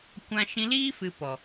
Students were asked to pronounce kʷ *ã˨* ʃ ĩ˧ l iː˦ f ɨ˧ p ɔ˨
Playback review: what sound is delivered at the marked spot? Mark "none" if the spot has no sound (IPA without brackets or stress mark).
ã˧